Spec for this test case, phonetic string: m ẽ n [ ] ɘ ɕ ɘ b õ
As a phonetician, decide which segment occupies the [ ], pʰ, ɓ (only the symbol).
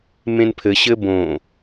pʰ